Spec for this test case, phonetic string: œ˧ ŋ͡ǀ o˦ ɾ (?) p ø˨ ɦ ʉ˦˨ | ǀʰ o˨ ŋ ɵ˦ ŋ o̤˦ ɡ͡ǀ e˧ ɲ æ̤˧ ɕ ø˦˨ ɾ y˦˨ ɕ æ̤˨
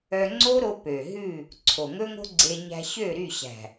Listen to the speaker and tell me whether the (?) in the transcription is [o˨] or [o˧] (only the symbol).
o˧